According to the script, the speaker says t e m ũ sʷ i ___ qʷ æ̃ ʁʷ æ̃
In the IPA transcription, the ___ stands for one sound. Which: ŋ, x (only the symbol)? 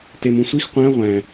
x